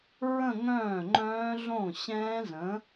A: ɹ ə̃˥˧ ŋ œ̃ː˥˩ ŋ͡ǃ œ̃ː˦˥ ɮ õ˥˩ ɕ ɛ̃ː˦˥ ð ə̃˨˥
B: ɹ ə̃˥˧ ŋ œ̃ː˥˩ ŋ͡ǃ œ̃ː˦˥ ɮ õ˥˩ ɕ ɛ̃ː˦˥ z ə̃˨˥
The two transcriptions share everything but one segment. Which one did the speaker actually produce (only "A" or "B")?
B